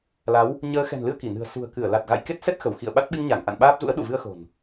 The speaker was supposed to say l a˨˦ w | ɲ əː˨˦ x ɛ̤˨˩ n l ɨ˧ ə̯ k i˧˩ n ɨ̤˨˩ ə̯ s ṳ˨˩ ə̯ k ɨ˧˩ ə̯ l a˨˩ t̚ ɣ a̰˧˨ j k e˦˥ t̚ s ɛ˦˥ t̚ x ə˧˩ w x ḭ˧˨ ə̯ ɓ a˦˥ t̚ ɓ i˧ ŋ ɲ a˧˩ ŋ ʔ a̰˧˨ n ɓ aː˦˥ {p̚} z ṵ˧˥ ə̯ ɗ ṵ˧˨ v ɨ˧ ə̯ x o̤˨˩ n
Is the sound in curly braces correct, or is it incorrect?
correct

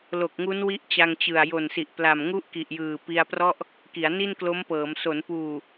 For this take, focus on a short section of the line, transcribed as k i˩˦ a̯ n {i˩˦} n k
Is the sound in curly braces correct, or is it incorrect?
incorrect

